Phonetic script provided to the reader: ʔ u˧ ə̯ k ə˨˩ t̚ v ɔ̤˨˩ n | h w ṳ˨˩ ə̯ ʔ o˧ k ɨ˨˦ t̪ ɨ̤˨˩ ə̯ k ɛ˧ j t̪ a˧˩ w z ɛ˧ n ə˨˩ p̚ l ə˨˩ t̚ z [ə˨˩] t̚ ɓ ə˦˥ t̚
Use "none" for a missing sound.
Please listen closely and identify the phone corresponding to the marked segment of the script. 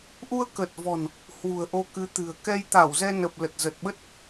ə˨˩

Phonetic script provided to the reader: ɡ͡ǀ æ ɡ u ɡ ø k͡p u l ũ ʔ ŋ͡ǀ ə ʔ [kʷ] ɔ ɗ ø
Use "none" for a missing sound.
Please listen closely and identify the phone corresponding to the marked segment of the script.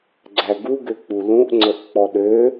k͡p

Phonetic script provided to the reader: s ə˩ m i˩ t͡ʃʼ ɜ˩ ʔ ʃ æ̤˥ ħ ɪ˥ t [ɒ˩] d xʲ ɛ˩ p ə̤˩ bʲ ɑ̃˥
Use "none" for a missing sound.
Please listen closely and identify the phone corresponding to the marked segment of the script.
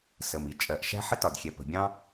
ɒ˩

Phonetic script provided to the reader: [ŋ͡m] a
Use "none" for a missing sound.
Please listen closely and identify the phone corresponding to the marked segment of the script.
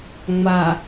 ŋ͡m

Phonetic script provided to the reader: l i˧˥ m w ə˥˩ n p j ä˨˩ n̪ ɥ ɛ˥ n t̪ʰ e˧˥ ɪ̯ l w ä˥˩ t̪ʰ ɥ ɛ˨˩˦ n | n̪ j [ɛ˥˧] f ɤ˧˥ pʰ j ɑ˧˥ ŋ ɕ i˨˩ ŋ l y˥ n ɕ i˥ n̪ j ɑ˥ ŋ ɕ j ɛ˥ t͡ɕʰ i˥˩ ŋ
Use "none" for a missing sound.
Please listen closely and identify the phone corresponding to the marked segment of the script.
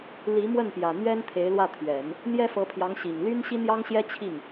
ɛ˥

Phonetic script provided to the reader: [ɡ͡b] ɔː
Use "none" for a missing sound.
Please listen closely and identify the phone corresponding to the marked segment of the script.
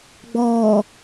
ɡ͡b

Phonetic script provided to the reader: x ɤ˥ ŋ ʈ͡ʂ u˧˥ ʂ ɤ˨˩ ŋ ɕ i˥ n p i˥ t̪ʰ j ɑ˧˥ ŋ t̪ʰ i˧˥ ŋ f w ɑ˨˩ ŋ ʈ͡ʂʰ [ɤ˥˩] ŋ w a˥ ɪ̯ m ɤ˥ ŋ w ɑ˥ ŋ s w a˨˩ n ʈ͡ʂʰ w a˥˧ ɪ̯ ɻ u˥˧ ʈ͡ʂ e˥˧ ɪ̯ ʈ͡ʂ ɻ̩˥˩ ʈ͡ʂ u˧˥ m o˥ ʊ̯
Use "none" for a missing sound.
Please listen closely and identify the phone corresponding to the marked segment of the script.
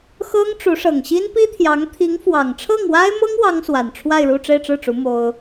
ɤ˥˩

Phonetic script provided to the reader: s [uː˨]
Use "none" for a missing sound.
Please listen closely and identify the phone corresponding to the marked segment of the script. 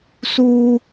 uː˦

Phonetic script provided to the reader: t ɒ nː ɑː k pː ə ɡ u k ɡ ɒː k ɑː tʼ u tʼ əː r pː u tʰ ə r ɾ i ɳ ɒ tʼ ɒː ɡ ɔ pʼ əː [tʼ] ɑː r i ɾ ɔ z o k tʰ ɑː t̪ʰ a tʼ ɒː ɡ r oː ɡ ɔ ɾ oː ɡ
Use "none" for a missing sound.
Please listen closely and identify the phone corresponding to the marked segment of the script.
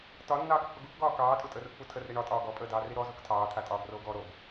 d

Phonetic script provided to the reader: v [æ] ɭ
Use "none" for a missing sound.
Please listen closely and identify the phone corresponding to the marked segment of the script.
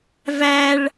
æ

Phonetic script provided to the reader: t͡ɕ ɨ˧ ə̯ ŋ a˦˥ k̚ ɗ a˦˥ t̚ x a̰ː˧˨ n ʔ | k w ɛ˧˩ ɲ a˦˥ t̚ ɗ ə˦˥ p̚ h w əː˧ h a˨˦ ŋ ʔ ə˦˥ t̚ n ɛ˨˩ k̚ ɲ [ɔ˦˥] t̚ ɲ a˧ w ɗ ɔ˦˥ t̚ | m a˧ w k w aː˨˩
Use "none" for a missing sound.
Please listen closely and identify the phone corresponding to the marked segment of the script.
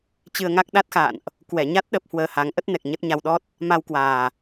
ə˦˥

